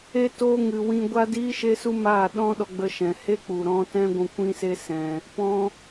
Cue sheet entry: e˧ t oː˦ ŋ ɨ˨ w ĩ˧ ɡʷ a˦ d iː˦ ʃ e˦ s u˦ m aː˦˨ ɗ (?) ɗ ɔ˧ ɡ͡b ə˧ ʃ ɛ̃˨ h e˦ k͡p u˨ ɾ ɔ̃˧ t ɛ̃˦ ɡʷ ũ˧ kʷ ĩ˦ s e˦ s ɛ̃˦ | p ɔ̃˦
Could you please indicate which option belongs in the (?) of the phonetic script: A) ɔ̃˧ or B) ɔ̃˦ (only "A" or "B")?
B